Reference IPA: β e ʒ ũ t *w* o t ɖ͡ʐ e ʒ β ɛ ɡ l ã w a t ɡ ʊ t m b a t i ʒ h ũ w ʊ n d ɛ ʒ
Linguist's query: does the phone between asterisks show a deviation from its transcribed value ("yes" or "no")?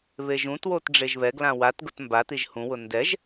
no